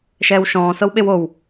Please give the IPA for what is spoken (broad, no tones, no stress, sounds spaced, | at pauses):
ʃ ɛː w ʃ ɔ̃ː s ɤ w ɓ e w o w